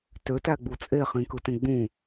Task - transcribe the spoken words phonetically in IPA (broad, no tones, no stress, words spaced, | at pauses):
tøtæɡ͡bu t͡sʼeχĩkɯtẽ ɡ͡bũ